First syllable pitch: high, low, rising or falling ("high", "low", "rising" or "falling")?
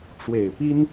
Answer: low